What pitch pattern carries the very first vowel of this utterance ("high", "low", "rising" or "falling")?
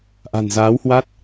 low